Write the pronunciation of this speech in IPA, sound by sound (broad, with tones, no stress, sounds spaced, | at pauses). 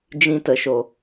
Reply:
d͡ʒ ĩ˧ t ə˨ ʃ o˨